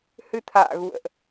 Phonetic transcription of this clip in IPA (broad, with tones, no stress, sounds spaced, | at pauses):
h ɨ˧ t̪ʰ a̰ː˧˨ ɣ ṵ˧˨ ə̯ ʔ